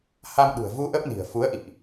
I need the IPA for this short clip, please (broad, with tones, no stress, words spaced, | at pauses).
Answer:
ha˧mɗṳ˨˩ə̯vu˧ ʔə˦˥p̚ni̤˨˩ə̯ fu˨˦ə̯ʔḭ˧˨ʔ